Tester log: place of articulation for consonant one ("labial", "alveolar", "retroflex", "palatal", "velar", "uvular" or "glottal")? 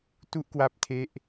alveolar